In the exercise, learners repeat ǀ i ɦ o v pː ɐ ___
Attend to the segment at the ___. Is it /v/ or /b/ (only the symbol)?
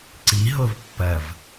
v